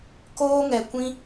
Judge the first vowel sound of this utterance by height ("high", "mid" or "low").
mid